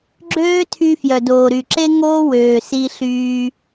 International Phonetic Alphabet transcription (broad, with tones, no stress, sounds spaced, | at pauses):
ɡ͡ǁ øː˦ tʰ y˧ f j œ˨ d oː˨ ɾ y˨ ǁ e˦ ŋ oː˦ w øː˨ s i˧ ɬ yː˧